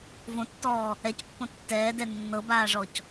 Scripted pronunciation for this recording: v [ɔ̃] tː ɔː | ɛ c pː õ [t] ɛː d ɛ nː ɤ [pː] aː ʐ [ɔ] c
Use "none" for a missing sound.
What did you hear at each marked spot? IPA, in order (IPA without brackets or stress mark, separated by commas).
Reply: õ, tː, b, ɔ